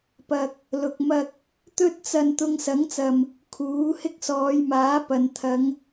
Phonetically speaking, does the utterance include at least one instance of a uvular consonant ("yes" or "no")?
no